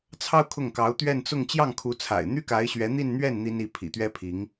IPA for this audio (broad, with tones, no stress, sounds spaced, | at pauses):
t͡sʰ ɑ˥ ʊ̯ kʰ ʊ˥˩ ŋ k ɑ˧˥ ʊ̯ t̪ ɥ ɛ˥˧ n t͡s ʊ˥˧ ŋ t͡ɕ j ɑ˥˩ ŋ kʰ u˧˥ t͡sʰ a̰˨˩ ɪ̯ n̪ y˥ k a˧˥ ɪ̯ ɕ ɥ ɛ˧˥ n̪ i˥˧ n n̪ ɥ ɛ˥˩ n n̪ i˥ n i˥˩ pʰ ḭ˨˩ t̪ ɥ ɛ˥ pʰ i˧˥ ŋ